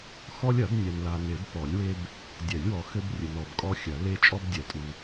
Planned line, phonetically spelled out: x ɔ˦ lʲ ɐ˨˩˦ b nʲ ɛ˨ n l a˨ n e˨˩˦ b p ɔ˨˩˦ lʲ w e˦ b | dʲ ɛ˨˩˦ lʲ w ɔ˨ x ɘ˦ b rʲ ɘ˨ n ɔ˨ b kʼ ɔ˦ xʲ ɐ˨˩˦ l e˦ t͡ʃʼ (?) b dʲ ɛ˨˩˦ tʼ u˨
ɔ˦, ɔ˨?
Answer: ɔ˦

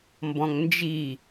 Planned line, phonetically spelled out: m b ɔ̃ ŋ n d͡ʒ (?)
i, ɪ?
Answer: i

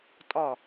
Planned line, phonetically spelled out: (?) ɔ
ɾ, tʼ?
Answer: tʼ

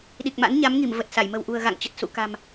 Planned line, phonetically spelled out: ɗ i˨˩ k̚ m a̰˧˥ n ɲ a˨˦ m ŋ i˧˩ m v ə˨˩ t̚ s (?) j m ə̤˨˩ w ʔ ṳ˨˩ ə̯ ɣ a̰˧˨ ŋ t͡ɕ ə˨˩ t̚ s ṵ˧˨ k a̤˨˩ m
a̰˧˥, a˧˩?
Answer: a˧˩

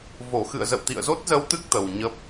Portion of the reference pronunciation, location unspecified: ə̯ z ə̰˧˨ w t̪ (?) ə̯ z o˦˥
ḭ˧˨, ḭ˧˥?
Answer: ḭ˧˨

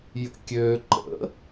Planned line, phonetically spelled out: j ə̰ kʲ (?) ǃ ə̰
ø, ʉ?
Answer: ø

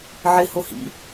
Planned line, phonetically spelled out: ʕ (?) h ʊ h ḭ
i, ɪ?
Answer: ɪ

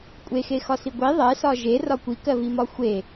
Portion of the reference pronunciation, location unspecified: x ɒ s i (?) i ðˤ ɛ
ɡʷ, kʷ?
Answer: ɡʷ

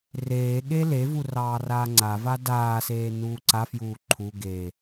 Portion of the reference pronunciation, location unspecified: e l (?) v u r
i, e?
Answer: e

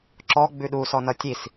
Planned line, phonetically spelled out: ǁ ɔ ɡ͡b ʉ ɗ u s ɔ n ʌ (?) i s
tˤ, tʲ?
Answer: tʲ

